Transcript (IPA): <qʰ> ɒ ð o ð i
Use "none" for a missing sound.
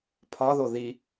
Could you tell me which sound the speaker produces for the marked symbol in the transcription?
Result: pʰ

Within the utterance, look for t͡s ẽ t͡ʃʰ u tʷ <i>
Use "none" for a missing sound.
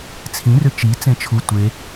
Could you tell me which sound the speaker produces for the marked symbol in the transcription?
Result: e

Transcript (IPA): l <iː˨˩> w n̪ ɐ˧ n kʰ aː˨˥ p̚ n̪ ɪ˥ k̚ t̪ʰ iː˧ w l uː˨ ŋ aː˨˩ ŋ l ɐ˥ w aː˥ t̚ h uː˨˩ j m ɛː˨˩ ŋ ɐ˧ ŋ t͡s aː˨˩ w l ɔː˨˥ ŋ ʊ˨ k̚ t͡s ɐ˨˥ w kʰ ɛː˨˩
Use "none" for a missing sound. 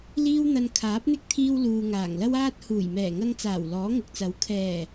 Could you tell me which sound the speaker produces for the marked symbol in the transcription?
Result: iː˥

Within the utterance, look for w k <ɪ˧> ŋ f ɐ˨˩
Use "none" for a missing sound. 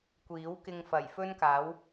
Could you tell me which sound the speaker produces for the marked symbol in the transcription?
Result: ɪ˧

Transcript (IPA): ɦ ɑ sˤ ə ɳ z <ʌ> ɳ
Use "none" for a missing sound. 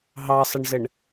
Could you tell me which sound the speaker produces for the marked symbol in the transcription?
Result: ə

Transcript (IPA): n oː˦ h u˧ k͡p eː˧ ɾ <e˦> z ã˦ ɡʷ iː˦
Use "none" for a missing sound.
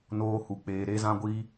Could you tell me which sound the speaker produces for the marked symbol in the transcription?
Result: e˦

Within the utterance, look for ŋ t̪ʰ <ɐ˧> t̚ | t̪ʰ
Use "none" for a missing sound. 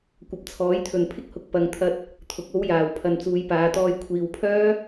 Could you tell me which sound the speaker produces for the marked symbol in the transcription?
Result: ɐ˧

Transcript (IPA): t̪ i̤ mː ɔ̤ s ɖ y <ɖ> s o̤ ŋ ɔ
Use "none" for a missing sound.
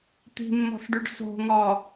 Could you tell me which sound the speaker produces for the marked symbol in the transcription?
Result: ɖ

